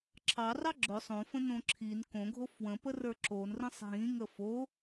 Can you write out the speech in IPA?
ǁʰɑrɑ ɡ͡ǁɵ sˤõfə̃nõ ǁʰin kõɡʱo fwə̃pərə˞ ǁonrə̃sˤ ɦĩŋə fo

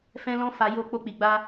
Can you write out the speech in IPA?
fɛ̃˦lɔ̃˦ fa˧ jo˧ k͡po˦k͡pi˧ɡ͡ba˦

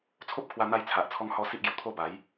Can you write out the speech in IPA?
t͡sʰo˦p̚kʰwa˧n̪a˧j t͡sʰa˨ʔt͡sʰɔ˧ŋhɔ˧ si˦ʔɡju˨˩t̪ʰo˥˧ ba˨˦j

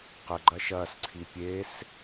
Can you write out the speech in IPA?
qəɡ͡ǃɐ ʃɐsǀʰi pʲes

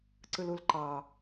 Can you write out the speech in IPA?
ǀɯlulǃɑ

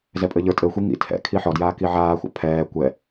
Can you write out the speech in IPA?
zɛpʼɘʎə˞ tʼɘːxʷi ŋḭ tʰɛ̰ kʰiħɔ djaːkiʕaː xʷa̰pʰɛː kʷɛ

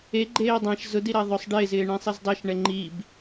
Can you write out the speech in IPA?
eɡ͡ǃeː dˤãʃ zʊdiɾa ðˤʊsˤ ɖɪːzɪːɳẽsˤiz dˤɛʃɳɛ ŋ͡ǃib

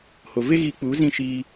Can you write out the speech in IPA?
ho˨ve˦ɣi˧k͡pu˨˦ zĩ˦ ʃiː˧

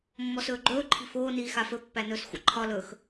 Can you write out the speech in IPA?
mːɔsɵːɡ͡ǃɵː ǃʰi̤foː niːxafɵ pːænɵːsxʷə̰ ǃʰɒ lɵx

